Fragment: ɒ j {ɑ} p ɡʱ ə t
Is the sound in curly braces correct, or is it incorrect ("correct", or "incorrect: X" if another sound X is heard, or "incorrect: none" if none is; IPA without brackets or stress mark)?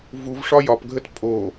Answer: incorrect: ɒ